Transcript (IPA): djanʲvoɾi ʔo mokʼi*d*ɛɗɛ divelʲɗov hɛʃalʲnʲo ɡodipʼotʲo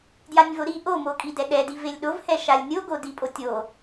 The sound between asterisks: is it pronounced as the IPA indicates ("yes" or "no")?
yes